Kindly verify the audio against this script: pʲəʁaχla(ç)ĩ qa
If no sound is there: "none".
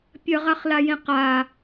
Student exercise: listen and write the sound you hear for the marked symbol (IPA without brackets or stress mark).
j